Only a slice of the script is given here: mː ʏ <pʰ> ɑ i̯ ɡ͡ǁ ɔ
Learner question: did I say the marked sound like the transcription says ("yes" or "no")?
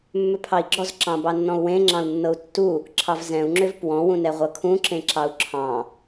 yes